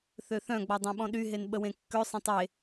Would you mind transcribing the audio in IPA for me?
θ ø θ œ̃ ɡ͡b ɔ dˤ ɛ̃ ɓ ɔ̃ ɗ y ɦ e n ɓ ə w ẽ kː ø sˤ ɛ̃ tˤ e

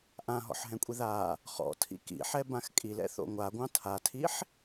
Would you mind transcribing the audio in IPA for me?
ʔ ã ɦ ɔ̰ ħ ɦ ɛ̃ kʷʼ i ð a | χ ɔ̰ tʰ ḭ k ḭ ħ ɛ b ã x kʼ i l ɛ̰ θ o̰ ŋʷ a ɡʷ ɑ̃ tʰ a tʰ i ħ

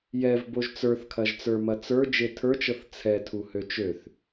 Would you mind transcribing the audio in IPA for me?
j ɛ v b o ʒ t͡s ə˞ θ kʰ ɐ ʒ t͡s ə˞ m ɐ t͡s ə˞ d͡ʒ e tʰ ə˞ t͡ʃ ɤ θ t͡sʰ ɛ tʰ u h ø t͡ʃ ø θ

